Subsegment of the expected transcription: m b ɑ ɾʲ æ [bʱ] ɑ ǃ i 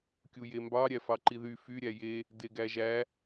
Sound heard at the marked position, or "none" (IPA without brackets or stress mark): f